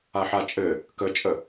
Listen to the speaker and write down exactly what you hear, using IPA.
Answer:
a ħ a t͡ʃʼ ɘ | k ə t͡ʃʼ ə

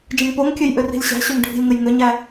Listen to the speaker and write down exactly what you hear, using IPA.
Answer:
d͡ʒ ə̃ ŋ p o ŋ kʲ ø j ʔ ʏ r i̤ lʲ ɕ æ̤ ɕ ø ŋ ɖʱ i̤ lʲ ŋ ə j ŋ ʏ ɲ æ

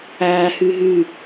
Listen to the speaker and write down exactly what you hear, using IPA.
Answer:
æː h y ɦ y

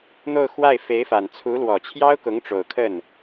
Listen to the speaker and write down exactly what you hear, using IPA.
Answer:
n̪ o˥˧ ʊ̯ x w a˥˩ ɪ̯ f e˧˥ ɪ̯ f a˨˩ n t͡sʰ u˧˥ l w ɔ˨˩ t͡ɕʰ j ɑ˥ ʊ̯ k ʊ˧˥ ŋ ʈ͡ʂ o˨˩ ʊ̯ kʰ ə˥˩ n

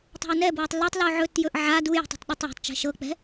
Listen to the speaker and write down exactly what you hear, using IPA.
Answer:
tˤ a̤ ə̯ n ɛ b w ɐ tˤ l o tˤ l o ʕ ɵ t j ɵ ʔ ʕ a d u j ə̤ tˤ i̤ tˤ ɗ u tˤ j ɛ̤ tˤ t͡ʃ ɛ̤ ʃ ɤ k͡p ɛ̤

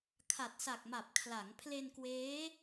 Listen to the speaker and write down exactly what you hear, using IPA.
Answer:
kʰ a˨˩ t̚ s a˨˩ k̚ m a˨˩ p̚ kʰ l a˩˦ ŋ pʰ l e˧ n k w eː˦˥

